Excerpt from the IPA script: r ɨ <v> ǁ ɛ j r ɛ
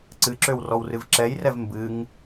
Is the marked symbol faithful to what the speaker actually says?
yes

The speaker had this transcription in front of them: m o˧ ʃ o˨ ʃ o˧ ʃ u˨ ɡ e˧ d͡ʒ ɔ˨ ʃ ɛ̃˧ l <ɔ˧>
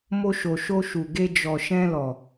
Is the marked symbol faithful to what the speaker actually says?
no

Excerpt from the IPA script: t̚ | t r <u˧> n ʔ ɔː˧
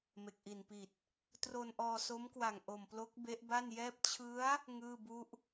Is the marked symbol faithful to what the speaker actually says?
no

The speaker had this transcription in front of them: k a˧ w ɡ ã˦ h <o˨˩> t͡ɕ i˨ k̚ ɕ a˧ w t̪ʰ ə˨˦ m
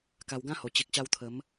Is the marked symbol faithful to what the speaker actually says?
yes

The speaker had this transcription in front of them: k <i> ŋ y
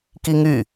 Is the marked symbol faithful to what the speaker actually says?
yes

